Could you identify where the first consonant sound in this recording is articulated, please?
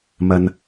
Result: labial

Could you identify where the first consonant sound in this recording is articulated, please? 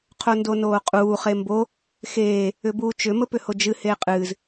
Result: uvular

